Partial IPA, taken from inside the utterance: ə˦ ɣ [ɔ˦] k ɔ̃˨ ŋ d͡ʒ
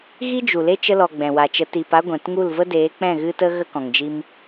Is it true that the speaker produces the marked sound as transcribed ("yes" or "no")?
no